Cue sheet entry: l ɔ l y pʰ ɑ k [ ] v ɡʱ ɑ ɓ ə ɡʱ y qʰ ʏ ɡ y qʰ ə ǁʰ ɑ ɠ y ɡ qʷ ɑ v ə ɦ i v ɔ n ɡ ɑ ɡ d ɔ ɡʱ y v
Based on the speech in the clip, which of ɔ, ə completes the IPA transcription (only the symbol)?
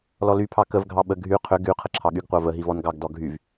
ə